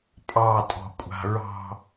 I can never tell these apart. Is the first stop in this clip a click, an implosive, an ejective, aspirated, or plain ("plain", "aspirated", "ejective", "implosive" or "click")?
ejective